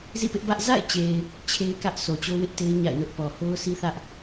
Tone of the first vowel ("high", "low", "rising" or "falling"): falling